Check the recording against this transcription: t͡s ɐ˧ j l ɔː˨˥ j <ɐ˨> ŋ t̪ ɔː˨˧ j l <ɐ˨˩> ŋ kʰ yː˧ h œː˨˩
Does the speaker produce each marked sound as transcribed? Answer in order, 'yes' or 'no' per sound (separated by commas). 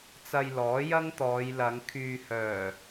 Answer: no, no